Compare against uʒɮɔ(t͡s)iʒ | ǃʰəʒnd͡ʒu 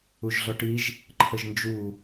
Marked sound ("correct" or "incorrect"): incorrect